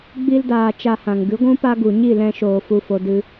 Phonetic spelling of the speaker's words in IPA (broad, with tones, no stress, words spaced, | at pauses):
ɡ͡bi˦ldaː˧t͡ʃa˧hã˨ŋ ɡɨ˨˦ɡʷũ˦ pa˦ɡu˨ ɲi˦˨lɛ̃˧ʃoː˨ fu˨fo˨ dɨ˧